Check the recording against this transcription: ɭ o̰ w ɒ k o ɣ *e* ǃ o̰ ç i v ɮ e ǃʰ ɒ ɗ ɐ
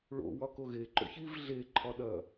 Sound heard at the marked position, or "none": e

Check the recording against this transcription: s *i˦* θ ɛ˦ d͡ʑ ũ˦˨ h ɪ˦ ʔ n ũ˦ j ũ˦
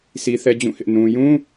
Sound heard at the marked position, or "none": i˦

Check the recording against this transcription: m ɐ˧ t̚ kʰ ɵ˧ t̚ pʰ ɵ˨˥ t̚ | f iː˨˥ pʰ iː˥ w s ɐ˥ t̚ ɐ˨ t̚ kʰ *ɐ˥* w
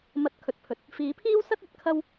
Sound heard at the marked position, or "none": ɐ˥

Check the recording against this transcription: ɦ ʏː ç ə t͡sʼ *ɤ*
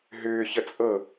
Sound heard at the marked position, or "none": ɤ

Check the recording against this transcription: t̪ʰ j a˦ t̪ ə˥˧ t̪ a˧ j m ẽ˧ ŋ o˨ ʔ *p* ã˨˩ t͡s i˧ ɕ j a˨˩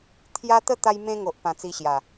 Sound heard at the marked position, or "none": p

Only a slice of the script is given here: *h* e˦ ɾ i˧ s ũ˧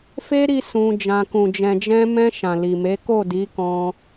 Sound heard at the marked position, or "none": f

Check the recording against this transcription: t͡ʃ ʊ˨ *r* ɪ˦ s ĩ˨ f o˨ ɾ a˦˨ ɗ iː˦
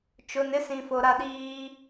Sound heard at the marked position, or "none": n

